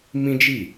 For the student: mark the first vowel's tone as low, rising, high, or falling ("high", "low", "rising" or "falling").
high